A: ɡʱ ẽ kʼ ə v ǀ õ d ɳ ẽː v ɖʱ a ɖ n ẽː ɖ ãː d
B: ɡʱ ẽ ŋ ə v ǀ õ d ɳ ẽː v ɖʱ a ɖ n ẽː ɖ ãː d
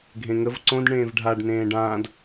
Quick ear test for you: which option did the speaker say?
B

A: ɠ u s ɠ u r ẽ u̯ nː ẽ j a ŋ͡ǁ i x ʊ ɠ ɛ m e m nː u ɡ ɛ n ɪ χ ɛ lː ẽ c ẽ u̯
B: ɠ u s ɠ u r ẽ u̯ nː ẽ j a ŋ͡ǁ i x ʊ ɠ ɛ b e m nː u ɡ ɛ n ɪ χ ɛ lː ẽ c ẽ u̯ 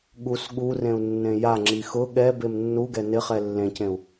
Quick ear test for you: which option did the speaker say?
B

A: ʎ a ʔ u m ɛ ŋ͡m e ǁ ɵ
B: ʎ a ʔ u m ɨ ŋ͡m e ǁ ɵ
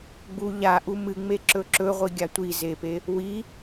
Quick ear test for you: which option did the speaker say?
B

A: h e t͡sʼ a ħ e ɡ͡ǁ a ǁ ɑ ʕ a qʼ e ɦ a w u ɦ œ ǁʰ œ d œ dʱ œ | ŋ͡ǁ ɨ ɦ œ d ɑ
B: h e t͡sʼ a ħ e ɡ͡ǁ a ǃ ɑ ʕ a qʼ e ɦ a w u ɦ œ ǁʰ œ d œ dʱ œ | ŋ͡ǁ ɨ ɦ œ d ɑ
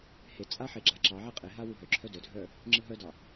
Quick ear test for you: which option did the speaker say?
A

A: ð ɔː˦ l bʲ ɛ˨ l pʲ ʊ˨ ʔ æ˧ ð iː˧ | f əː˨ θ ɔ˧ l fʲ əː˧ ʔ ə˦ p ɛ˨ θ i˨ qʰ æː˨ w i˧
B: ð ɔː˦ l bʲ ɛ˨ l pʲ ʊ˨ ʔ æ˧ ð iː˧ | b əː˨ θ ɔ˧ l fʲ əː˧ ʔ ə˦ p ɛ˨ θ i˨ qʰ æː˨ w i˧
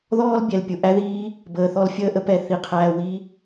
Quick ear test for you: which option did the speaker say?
B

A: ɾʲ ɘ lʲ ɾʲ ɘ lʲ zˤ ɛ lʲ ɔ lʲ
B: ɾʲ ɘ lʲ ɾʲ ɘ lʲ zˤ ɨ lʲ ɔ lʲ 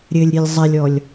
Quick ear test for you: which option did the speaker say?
A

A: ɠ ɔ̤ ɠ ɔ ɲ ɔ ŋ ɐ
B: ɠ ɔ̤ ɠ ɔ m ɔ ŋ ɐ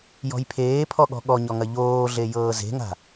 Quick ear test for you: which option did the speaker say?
A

